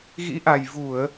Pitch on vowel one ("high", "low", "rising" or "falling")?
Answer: rising